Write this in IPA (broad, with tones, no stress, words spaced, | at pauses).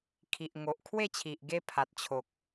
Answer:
kʰi˨ʔŋo˨ʔkʰwe˥˧t͡ɕʰi˨ʔ ɡe˦pʰa˨t̚t͡ɕʰo˨k̚